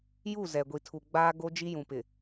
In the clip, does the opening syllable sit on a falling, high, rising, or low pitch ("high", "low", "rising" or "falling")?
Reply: falling